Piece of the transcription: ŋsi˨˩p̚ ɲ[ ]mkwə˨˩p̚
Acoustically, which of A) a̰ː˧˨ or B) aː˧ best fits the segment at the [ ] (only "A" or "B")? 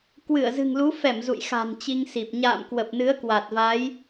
A